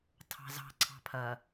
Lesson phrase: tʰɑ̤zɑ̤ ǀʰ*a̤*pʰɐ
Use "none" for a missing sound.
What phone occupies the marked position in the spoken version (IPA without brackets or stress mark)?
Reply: ɑ̤